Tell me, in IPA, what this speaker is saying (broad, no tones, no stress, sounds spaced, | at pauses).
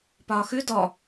p ɒː x ʉ d ɔ